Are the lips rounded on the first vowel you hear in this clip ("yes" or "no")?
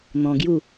yes